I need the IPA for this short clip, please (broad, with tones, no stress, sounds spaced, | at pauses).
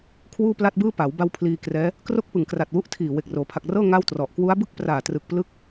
kʰ w uː˥˩ p l a˥˩ t̚ b ɯː˥˩ p a˩˦ w b a˧ w pʰ l iː˧ k r ɛː˦˥ | k r o˥˩ k̚ p ɯ˨˩ ŋ k r a˨˩ t̚ w u˦˥ ʔ tʰ iː˨˩ w e˨˩ k̚ r oː˩˦ pʰ a˨˩ k̚ r ɤː˥˩ ŋ a˥˩ w t r ɔ˨˩ ʔ k w u˦˥ a̯ b ɯ˥˩ k̚ p r aː˨˩ t r ɯ˨˩ k̚ p l ɯ˦˥ k̚